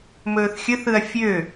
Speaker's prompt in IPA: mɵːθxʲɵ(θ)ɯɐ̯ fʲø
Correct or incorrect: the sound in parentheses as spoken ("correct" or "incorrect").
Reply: correct